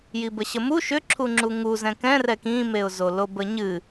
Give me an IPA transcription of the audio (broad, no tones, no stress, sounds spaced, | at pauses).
j i b ə ɕ ə m u ʃ ʏ ǁʰ u ŋ͡ǁ u ŋ u z ɛ̃ k ɛ̃ r ɛ k ĩ m e ʊ̯ z o l o b ə ɲ ɨ